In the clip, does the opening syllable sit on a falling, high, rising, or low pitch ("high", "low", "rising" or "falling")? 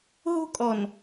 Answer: high